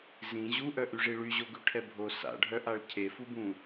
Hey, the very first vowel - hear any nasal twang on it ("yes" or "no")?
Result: yes